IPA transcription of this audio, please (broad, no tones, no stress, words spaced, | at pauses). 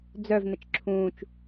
d͡zœv nət͡ʃǁʰũːt͡ʃ